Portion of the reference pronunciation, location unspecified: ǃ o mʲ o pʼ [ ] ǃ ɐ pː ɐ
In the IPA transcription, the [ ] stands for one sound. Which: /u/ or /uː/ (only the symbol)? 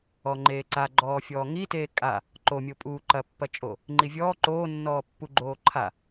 uː